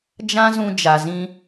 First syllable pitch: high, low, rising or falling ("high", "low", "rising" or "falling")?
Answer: high